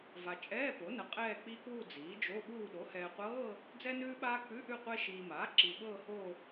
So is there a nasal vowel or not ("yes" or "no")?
no